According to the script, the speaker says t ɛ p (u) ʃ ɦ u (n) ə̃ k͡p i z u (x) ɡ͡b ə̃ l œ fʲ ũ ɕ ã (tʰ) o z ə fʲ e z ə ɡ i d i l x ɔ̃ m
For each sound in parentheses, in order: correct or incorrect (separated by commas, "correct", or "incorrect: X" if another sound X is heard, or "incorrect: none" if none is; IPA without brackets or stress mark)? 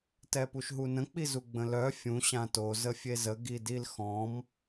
correct, correct, incorrect: none, incorrect: t